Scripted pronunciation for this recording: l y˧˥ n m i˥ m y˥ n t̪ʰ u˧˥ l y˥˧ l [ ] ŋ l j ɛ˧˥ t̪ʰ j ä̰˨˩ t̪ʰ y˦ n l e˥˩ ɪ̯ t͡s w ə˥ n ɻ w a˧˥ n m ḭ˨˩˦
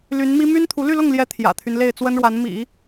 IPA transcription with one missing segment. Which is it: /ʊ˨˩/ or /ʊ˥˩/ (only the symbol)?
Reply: ʊ˥˩